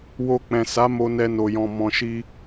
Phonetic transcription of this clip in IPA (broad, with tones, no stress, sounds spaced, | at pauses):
w o˧ k͡p ɛ̃˨ s a˨˦ m o˧ n ɛ˧ n o˨ j ɔ̃˨ m ɔ̃˨ ʃ i˧